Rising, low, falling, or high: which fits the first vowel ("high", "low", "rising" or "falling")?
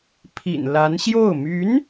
low